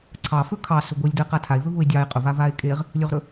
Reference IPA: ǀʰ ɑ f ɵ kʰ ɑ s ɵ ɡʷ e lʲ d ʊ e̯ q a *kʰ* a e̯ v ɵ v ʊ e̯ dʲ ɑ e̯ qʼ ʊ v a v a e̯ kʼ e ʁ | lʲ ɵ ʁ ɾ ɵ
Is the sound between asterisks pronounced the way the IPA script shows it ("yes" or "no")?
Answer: no